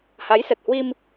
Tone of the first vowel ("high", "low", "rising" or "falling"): rising